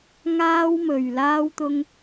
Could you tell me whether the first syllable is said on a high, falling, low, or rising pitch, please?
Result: high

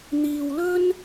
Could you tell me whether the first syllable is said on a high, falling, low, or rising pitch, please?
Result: low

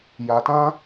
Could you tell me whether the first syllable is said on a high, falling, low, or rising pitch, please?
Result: low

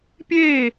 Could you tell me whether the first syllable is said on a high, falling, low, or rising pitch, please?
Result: falling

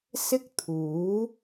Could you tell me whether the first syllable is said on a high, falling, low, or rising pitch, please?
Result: high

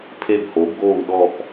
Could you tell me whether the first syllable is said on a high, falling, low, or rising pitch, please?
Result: falling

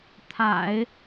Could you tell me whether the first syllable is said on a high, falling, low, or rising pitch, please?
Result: low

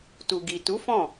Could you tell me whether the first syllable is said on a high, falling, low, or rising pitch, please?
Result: low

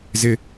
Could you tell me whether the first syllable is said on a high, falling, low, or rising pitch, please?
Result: high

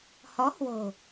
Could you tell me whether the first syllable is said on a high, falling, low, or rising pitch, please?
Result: rising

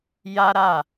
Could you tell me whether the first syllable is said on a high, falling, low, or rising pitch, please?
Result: high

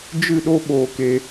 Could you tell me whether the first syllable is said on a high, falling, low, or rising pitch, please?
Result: falling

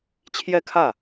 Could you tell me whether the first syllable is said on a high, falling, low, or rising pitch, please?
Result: falling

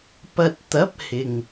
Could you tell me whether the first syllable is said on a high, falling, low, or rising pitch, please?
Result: low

